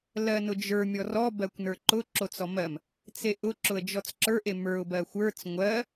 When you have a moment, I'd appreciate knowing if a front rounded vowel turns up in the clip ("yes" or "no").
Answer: no